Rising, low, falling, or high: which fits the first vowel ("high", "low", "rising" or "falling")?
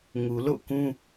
low